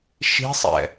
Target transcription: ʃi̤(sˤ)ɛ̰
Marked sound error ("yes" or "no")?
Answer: no